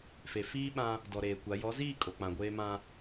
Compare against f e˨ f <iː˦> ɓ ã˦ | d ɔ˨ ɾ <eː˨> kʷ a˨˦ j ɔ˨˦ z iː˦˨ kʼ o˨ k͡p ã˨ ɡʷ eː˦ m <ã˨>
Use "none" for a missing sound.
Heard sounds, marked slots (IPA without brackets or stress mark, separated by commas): iː˦, eː˨, ã˦